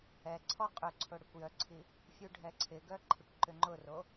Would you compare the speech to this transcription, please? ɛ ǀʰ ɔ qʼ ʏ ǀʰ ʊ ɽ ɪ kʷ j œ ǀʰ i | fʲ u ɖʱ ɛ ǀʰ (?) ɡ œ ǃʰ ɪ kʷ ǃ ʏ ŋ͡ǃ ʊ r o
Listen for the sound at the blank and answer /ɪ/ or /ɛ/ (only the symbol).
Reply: ɪ